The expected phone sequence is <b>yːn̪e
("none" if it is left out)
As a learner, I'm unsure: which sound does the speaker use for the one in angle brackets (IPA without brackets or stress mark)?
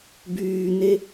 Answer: b